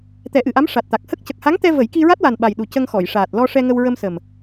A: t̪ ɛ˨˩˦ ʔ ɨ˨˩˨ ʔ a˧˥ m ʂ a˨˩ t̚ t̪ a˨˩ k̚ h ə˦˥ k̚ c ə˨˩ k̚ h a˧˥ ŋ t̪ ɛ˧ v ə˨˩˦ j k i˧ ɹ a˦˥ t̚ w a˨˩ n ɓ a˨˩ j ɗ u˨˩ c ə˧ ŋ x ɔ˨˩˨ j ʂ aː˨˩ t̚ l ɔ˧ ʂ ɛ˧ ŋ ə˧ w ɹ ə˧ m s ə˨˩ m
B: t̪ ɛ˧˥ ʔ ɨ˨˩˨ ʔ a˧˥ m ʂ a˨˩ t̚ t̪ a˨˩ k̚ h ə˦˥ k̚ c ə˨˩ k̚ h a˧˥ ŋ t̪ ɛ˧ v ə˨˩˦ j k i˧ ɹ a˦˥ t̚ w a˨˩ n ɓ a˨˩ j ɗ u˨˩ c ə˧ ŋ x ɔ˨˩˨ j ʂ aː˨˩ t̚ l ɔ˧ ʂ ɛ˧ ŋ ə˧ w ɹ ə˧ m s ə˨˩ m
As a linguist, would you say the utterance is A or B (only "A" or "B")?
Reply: A